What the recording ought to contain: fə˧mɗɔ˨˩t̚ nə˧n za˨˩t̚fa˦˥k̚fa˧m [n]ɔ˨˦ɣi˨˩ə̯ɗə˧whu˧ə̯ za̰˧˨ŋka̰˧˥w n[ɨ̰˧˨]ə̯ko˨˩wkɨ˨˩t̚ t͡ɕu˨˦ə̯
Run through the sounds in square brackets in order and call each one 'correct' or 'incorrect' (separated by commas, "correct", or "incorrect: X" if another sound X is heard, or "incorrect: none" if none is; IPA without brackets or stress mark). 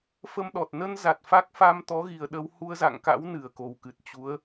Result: incorrect: t̪, incorrect: ɨ˨˩